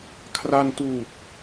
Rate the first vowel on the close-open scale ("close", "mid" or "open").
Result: open